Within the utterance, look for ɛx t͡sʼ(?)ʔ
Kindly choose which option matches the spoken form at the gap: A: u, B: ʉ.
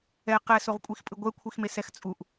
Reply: A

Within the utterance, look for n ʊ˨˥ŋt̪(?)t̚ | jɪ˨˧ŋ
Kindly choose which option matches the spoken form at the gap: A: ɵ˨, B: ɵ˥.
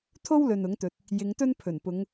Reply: A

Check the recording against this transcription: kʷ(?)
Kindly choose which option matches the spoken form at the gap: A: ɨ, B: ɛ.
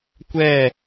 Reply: B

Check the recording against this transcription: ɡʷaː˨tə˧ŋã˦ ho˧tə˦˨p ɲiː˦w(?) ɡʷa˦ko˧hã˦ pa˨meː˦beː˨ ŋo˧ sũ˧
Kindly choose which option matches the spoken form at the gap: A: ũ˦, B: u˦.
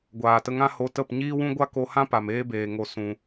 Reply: A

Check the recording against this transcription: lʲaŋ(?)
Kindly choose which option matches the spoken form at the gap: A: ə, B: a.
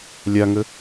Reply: A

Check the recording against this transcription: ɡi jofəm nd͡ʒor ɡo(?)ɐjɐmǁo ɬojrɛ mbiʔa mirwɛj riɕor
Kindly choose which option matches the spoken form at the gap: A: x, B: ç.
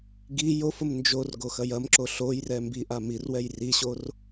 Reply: A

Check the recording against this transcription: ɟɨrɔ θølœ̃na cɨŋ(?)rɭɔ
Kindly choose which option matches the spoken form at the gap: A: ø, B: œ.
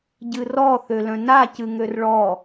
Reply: A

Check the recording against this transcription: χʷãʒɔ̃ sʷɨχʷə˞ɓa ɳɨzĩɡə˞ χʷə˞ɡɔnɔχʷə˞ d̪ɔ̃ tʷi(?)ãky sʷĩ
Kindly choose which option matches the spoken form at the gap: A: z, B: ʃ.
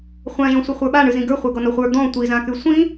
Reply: A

